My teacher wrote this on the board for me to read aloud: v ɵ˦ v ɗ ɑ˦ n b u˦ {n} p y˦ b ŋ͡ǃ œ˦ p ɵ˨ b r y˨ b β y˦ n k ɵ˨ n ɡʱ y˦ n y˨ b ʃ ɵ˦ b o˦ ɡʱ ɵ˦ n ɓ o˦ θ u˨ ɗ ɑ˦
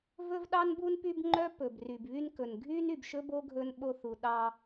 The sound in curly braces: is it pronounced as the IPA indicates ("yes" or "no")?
yes